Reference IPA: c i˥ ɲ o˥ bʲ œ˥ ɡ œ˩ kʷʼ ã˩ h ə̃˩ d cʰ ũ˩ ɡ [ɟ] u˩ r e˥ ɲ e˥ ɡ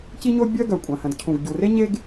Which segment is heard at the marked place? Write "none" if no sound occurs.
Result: ɟ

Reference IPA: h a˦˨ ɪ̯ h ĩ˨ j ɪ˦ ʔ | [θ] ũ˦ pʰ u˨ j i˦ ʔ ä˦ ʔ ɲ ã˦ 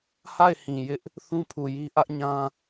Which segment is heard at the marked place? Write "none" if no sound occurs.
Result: θ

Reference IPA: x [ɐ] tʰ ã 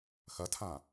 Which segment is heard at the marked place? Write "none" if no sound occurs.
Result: ɐ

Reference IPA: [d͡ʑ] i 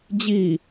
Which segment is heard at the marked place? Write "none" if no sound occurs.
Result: d͡ʑ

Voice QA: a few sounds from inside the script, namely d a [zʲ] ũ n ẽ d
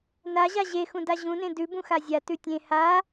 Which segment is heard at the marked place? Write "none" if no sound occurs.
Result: ʑ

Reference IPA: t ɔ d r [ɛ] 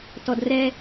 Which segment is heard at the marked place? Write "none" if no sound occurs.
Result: ɛ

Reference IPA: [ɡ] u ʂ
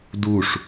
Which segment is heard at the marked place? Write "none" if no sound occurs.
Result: d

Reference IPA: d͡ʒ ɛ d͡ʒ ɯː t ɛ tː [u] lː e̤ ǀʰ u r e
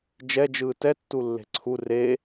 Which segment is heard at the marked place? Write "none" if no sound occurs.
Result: u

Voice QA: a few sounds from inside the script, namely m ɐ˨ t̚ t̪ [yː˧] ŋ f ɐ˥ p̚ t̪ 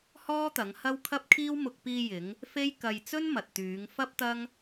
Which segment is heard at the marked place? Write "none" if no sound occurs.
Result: yː˨˧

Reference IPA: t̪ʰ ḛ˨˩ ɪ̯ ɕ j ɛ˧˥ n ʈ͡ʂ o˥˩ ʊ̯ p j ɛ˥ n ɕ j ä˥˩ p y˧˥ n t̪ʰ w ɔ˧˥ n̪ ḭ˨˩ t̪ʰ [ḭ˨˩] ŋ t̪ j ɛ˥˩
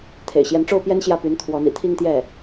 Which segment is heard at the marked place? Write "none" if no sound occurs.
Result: i˥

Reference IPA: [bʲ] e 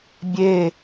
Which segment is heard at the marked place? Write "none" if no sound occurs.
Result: bʲ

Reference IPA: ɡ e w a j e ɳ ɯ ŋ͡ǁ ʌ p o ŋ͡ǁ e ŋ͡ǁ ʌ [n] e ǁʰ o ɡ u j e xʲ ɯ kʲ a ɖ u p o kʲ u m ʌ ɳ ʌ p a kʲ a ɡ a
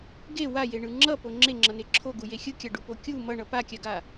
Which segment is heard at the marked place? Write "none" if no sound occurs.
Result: n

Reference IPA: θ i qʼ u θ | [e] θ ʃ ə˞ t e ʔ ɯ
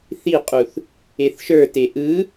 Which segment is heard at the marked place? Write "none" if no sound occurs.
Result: e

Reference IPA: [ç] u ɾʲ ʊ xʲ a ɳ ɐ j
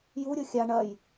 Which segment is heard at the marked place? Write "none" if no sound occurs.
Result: j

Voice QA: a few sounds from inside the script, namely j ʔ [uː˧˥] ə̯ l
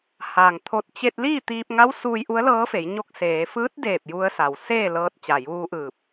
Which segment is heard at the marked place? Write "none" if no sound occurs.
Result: u˧˥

